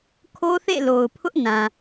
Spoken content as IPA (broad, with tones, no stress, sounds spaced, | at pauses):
kʰ o˦ θ ḛ˦˨ l o˨ ʊ̯ pʰ ʊ˦ ʔ n ã˨